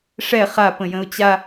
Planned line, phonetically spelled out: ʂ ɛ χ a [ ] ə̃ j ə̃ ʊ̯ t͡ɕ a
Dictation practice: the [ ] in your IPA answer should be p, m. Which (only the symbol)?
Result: p